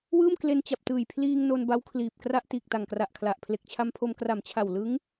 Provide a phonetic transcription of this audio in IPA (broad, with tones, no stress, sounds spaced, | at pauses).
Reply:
w ɯː˥˩ m k l e˧ n t͡ɕ a˨˩ p̚ t ɯː˨˩ j pʰ l iː˧ ŋ n o˧ n b a˦˥ w kʰ l iː˨˩ p̚ k r a˥˩ ʔ t iː˨˩ k̚ t a˨˩ ŋ k r a˨˩ ʔ kʰ l a˨˩ ʔ pʰ l e˨˩ k̚ t͡ɕʰ a˧ m pʰ o˧ m k r a˨˩ m t͡ɕʰ a˨˩ w l ɯ˦˥ ŋ